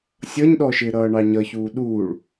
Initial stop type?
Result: implosive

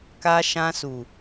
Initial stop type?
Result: plain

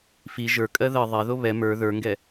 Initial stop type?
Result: ejective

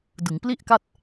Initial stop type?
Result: plain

